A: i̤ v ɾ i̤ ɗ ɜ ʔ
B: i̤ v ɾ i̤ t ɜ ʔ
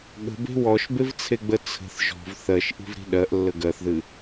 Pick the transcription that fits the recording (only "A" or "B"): A